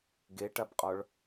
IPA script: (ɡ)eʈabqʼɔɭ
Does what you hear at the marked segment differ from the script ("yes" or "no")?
no